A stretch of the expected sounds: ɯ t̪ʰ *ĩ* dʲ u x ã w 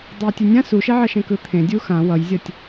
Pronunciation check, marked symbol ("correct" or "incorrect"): incorrect